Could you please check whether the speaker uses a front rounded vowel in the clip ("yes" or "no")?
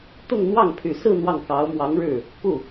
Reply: yes